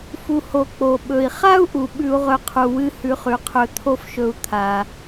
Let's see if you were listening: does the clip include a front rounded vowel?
no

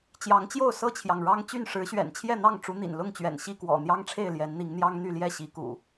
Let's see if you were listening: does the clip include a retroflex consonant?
yes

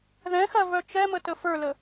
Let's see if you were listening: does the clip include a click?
no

